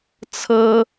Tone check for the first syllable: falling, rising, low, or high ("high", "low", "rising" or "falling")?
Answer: high